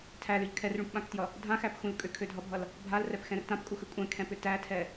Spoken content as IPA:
tʰ æ l ʏ ʎ kʰ ɛ r ɭ ũ p ɓ ã k t j ʌ | dʱ ã x æ p x ũ l kʼ ʏ kʰ ø dʱ ʌ bʱ ʌ l | bʱ a l r ɛ p x ɛ̃ r t ã p kʼ u x ʏ kʷʼ ɛ̃ kʰ ɛ̃ p ʏ t æ tʰ ɛ

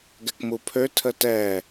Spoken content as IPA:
ɡ ɛ k m u pʰ ø tʰ ə t ɛ

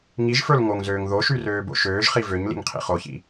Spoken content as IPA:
ŋ i ʒ f ə˞ l ŋ o ŋ z øː ŋ ð o ʃ y r øː b o̰ ʃ øː ʒ χ i v ø ɲ l ḭ ŋ qʰ ḭ χ o ç ḭ

